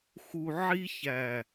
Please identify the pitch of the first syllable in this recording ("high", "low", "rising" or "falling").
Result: low